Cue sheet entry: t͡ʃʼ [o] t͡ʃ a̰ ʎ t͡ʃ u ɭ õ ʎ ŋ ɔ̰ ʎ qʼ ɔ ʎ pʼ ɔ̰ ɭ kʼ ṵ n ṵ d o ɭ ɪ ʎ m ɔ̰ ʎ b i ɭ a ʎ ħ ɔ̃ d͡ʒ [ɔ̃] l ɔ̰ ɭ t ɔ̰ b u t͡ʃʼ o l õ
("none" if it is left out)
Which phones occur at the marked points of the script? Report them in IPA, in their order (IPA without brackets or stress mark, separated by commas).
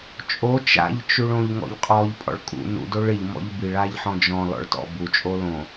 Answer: o, ɔ̃